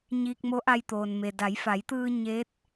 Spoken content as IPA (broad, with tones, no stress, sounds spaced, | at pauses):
ɲ iː˧ k̚ m o˧˥ ʔ a˧ j t̪ oː˩ n m e˩ d a˩˧ j f a˩˧ j t̪ ɯː˧ ɲ e˧˥ t̚